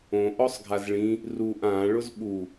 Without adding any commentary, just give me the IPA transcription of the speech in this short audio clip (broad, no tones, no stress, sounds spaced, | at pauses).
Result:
õ ʔ ɔ sˤ ɡʱ a z ɭ ĩ | r u ʔ ã ɭ ʊ z ɓ u